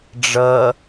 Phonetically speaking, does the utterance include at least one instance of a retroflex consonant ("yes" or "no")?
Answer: yes